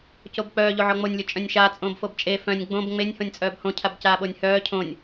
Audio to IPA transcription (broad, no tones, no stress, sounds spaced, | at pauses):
c o b k͡p œː ʎ o ʕ ɔ ŋ͡m o nʲ lʲ o t͡ʃʼ œ̃ nʲ ʃ aː t͡sʼ õː b f o b t͡ʃʼ e f œ̃ nʲ ɡ͡b õ b ŋ͡m e nʲ h õ nʲ t͡sʼ œː b h õ cʰ a b c aː ɓ o nʲ h œː cʰ õ nʲ